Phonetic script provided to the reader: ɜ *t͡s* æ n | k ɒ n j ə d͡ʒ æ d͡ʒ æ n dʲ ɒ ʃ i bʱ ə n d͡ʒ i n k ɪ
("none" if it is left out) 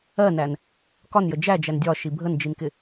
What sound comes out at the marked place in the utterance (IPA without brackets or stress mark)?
n